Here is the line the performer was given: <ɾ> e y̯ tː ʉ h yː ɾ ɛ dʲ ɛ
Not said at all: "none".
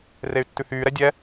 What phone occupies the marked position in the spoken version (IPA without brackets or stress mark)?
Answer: r